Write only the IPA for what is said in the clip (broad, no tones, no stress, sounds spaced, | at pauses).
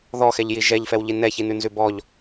ð ɔ x ɛ ʎ j i ʒ ɛ ʎ f ɛ w ʎ i n ɛ ç i n ʉ n z ʉ b ɔ ʎ